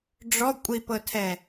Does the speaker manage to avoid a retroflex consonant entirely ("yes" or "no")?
no